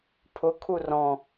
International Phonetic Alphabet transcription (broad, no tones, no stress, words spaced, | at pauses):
pʰʊkʰu rɔ̃